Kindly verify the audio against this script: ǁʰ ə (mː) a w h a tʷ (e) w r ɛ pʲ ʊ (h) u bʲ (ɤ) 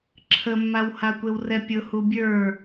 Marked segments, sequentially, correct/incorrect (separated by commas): correct, correct, correct, incorrect